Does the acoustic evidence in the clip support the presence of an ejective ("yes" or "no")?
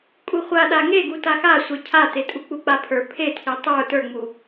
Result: yes